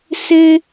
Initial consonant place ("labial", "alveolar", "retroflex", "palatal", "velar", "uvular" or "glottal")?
alveolar